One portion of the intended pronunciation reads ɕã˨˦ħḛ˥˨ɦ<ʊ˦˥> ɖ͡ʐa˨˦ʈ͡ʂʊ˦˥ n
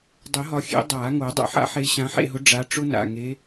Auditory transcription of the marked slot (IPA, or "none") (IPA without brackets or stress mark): ʊ˨˦